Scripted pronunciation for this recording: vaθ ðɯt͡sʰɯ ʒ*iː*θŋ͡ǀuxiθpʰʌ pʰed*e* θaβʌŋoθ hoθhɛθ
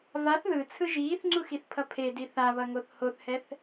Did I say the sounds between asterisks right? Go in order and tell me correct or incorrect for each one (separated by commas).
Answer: correct, incorrect